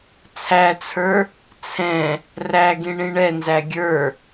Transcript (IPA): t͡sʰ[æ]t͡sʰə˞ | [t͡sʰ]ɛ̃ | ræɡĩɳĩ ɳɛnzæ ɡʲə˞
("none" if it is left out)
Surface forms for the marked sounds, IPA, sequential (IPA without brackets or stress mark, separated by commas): æ, t͡sʰ